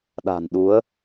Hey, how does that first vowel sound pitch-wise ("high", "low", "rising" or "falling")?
low